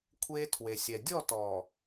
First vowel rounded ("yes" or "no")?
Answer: no